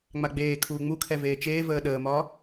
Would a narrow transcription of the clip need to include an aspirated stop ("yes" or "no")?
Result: yes